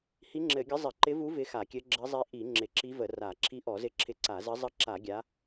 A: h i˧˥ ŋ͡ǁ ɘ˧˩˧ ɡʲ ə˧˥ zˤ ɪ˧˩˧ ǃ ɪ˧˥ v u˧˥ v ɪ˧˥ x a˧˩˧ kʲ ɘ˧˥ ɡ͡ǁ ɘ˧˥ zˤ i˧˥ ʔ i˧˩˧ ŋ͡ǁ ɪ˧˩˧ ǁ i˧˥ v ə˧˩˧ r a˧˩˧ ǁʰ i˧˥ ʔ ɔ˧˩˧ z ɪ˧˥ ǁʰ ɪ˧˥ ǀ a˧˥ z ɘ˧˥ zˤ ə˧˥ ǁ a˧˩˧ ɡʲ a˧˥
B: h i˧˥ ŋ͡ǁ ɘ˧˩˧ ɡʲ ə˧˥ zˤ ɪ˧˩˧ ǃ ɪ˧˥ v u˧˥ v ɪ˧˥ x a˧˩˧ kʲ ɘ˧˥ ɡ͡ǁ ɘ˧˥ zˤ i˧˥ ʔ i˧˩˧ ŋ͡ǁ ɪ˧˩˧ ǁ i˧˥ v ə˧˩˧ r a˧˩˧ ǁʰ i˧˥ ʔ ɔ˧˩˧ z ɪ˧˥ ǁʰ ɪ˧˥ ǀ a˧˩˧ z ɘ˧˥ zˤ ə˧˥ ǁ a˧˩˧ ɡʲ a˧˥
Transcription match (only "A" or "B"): B